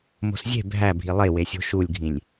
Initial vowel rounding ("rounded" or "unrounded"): rounded